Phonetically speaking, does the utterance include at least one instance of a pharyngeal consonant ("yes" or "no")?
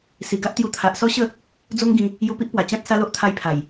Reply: no